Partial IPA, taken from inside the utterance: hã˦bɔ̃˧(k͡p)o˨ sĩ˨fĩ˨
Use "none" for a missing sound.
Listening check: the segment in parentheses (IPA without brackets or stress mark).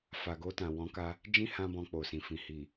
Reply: k͡p